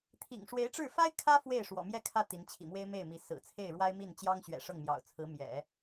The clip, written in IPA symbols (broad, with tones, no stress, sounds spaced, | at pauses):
t̪ʰ ḭ˨˩ ŋ ʂ w e˧˥ ɪ̯ ʈ͡ʂ ɻ̩˥˩ f a˥ ɪ̯ kʰ ä˥ f w e˥˩ ɪ̯ ʂ w ɔ̰˨˩ m j ɛ˥˧ kʰ ä˥˩ t̪ i˧˥ n t͡ɕʰ ḭ˨˩ m w e˥ ɪ̯ m e˥˩ ɪ̯ m i˧˥ s ɹ̩˨˩ t͡sʰ e˥˩ ɪ̯ ɻ w a˥ ɪ̯ m i˥˩ n t͡ɕ j ɑ˥ ŋ ɕ ɥ ɛ̰˨˩ ʂ ɤ˥˩ ŋ m j ɑ̰˨˩ ʊ̯ t͡sʰ ɹ̩˧˥ m j ɛ̰˨˩˦